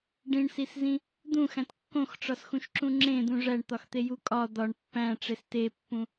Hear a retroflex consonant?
yes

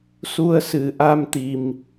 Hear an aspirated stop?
no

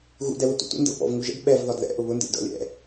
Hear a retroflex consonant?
no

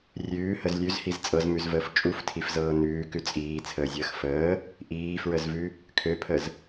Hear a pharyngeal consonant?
no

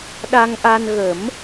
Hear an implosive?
yes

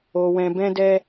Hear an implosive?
no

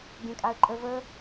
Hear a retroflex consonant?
no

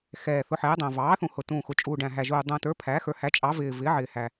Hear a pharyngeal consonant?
yes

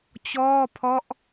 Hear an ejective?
no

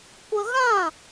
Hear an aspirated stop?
no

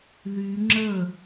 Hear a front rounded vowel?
yes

